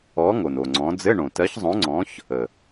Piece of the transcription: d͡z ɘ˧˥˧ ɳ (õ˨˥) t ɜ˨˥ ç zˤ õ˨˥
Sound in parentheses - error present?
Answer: yes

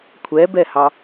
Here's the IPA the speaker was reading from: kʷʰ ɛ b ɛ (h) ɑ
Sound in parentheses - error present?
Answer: no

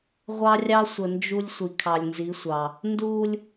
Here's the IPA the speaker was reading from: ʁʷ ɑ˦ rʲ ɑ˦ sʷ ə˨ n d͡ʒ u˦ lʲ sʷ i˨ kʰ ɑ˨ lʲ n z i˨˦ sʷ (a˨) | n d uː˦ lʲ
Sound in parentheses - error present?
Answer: yes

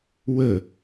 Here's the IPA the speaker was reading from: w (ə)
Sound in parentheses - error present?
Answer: no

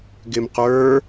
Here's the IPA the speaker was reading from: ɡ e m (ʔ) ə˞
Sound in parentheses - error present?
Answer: yes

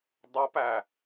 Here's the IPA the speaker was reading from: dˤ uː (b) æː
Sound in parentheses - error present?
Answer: yes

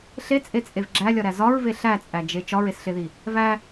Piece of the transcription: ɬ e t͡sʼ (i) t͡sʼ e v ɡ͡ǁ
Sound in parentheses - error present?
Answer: yes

